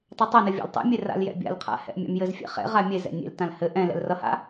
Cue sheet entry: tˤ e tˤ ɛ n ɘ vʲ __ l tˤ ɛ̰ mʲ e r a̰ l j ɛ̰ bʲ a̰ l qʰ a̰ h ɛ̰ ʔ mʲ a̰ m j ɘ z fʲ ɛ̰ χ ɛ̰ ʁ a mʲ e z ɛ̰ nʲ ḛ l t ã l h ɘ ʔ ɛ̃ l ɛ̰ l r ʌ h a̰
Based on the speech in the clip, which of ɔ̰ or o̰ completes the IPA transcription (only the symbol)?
ɔ̰